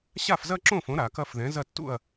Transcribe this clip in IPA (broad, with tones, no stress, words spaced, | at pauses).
ɕa˥˩fzɐ˥˧ǁõ˥˩fõ˩˥ ɾa˩˧kɐ˥˧f ðɛ̃˩˥zɐ˥˩tːṵ˥˩ɐ̯